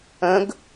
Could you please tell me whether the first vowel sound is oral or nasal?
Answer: nasal